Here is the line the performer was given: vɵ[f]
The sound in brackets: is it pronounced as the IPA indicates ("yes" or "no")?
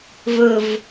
no